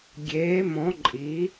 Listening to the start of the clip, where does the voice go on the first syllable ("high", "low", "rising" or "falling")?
rising